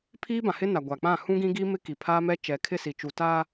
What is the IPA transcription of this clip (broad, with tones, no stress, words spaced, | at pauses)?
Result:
pʰiː˦bã˨hɪ˦na˨ ɡʷa˨k͡pã˦˨ hũ˦ɡĩ˦ɡiː˦ mɪ˦ki˨pʰa˦mɛ˦ t͡ʃɛ˨kʰɪ˦˨si˨t͡ʃu˨ ta˦